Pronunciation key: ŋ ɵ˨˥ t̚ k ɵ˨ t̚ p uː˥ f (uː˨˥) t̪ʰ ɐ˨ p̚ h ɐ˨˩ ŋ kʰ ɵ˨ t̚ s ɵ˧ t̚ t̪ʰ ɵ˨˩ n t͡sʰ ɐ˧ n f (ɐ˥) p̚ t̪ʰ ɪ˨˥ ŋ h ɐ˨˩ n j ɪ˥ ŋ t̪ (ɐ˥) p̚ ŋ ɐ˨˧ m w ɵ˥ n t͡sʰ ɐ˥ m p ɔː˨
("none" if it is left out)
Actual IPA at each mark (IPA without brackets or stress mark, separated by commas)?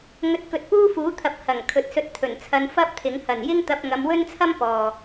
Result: uː˨˥, ɐ˥, ɐ˧